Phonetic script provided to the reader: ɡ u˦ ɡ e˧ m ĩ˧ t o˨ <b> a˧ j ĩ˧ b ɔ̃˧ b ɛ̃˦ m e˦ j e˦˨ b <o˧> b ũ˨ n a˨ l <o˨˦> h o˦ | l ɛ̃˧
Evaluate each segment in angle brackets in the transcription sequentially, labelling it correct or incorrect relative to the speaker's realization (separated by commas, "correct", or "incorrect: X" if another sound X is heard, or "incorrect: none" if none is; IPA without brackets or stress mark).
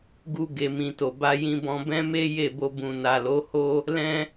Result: correct, correct, correct